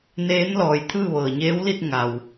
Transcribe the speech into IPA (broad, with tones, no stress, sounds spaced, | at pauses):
n eː˧˥ n l ɔː˩ j t̪ʰ ɯː˥˨ ʋ ɤː˩ ɲ eː˧˥ w l i˥˨ t̚ ŋ a˩ w